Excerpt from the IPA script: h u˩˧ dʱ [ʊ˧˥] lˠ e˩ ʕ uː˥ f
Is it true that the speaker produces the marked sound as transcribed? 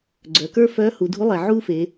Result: no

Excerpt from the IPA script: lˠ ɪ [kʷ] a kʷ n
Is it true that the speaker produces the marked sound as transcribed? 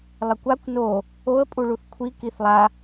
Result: yes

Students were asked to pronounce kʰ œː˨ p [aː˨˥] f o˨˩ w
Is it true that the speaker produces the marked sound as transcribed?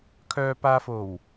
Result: no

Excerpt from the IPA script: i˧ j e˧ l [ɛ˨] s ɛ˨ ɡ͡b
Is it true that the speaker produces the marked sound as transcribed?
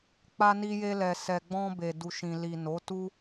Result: yes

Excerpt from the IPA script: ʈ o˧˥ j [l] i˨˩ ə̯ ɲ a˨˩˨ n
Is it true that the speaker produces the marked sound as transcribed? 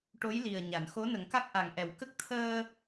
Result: yes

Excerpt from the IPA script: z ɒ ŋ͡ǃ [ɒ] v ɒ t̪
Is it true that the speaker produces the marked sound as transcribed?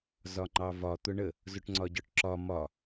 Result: no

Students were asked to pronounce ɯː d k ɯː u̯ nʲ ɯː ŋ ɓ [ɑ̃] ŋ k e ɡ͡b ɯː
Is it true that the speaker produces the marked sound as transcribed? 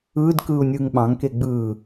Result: yes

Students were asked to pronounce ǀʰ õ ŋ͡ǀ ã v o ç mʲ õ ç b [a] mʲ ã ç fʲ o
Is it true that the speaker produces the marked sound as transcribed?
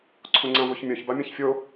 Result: yes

